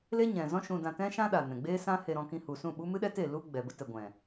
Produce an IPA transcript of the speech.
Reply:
l e˦ ɲ ɛ̃˨ z ɔ̃˦ ʃ ũ˧ d ã˧ t ɛ̃˦ ʃ ã˦ ɗ a˨ n ɛ̃˨ ɡ͡b eː˦ s ã˦ h e˧ ɾ ɔ̃˧ k ĩ˧ h u˨ s ũ˦˨ ɓ u˦ m ɨ˦ ɗ ɛ˦ t e˦˨ l u˦ ɡ͡b ɛ˨ b ə˦ t ɛ˨ ɡʷ ɛ̃˨

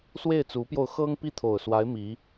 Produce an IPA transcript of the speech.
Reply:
s w e˥˩ ɪ̯ t͡s u˧˥ p j o˧ ʊ̯ x ɤ˥ ŋ p i˥˩ t̪ʰ o˨˩ ʊ̯ s w a˧˥ ɪ̯ m i˧˥

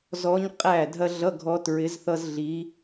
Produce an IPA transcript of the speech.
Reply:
z ɔ˧˥ ɲ qʼ æ˥˩ dʱ ɐ˥ ɮ ʌ˧˥˧ ɡʱ ɔ˧˥ t ɹ ɪ˧˥ z θ ʌ˥ z ɮ i˧˥

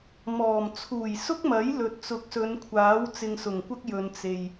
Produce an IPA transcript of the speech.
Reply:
m ɔː˨˩ m t͡sʰ uː˨˩ j s ʊ˥ k̚ m ɐ˨˥ j l ɵ˨˥ t̚ t͡s ʊ˨˥ k̚ s ɵ˨˧ n kʷʰ aː˨˥ w t͡s ɪ˧ ŋ s ʊ˨˩ ŋ kʷ ɐ˥ k̚ j ɵ˨ n t͡s e˨ j

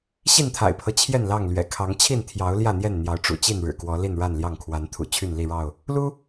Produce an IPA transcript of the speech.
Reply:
ɕ i˥˨ n t̪ʰ a̰˨˩ ɪ̯ pʰ ɤ˦ t͡ɕʰ j ɛ˥˨ n l ɑ˥˨ ŋ l ɥ ɛ̰˨˩ kʰ ɑ˨˦ ŋ t͡ɕʰ i˥˨ n t̪ʰ j ɑ˨˦ ʊ̯ l j ä˥˨ n̪ j ɛ˥˨ n n̪ j ɑ˨˦ ʊ̯ ʈ͡ʂ ṵ˨˩ t͡ɕ i˥˨ n ɻ ɻ̩˨˩ k w ɔ˨˦ l i˥˨ n ɻ a˥˨ n l j ɑ˥˨ ŋ kʰ w a˨˦ n t̪ʰ ṵ˨˩ t͡ɕʰ y˥˨ n l i˥˨ ɻ ɑ˥˨ ʊ̯ | l u˦

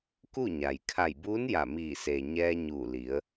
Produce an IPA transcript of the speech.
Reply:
k u˥˨ ɲ a˩ j kʰ a˧˩ j b uː˧˥ n j a˧˩ m iː˧˩ s eː˩ ɲ ɛː˧ ɲ uː˧˩ l i˩˧ ə̯

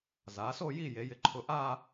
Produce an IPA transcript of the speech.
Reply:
z aː˩˧ s o˥˧ j i˥˧ j e˩˧ j ɪ˧ ǃʰ ʊ˧ ʔ aː˥˧

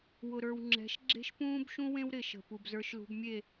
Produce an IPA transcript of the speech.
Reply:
w ʊ˨ ɾ ə˞˨ w ŋ͡ǁ ɛ̤˨˦ ʃ ɡ͡ǁ e̤˦ ʃ p ũː˦ b ʃ ũ˦ w ẽ˦ w ɾ ɪ˨ ʃ ə̤˨ p u˨ b z ə˞˦ ʃ l ṳ˦ b mʲ e˦˨

